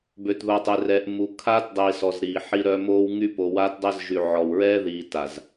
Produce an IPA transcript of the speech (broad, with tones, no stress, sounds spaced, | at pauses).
b ø˨ t ð o˨ tˤ e˨ r ɛː˨ ʔ m u˨ kʰ aː˦ t dˤ iː˨ s ɔ˨ z ɾ iː˨ ħ i˦ ɾ œ˦ m oː˦ w ŋ y˦ p o˨ w aː˦ t dˤ əː˦ z ʒ y˨ ʕ ɔ˨ w ɹ ɛː˦ ð iː˨ t a˨ z